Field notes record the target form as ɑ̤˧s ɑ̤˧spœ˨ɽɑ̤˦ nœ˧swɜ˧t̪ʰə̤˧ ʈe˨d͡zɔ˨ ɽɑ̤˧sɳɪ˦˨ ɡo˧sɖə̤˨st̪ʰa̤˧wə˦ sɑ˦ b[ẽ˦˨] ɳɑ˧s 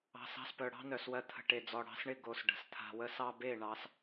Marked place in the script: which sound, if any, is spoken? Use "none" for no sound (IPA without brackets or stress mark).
e˦˨